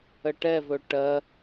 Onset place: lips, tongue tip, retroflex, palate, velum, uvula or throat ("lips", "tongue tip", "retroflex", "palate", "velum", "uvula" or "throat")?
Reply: retroflex